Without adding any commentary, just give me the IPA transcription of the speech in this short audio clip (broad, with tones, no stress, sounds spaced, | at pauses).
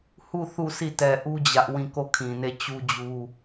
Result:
h u˦˨ θ u˦˨ s i˦˨ t ɛ˨ ʔ u˦ d͡ʑ ä˦ ʔ w ĩ˦˨ k o˦˨ kʰ ĩ˨ n e˦˨ t͡ɕ u˦ d͡ʑ u˦